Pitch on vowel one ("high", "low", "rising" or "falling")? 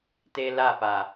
high